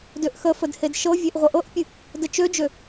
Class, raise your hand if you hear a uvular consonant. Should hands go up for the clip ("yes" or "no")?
yes